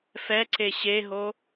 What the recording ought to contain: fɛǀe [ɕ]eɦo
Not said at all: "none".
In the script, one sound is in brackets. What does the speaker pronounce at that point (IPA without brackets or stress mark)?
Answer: ɕ